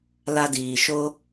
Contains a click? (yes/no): no